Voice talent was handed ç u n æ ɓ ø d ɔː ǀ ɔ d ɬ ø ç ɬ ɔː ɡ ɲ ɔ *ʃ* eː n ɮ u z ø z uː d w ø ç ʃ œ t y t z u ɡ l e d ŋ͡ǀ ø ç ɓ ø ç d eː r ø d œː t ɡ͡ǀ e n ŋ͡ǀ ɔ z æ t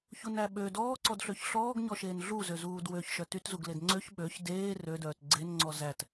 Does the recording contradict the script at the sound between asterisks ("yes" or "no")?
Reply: no